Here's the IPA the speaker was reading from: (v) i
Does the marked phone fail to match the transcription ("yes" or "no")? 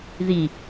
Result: yes